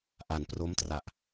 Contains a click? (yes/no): no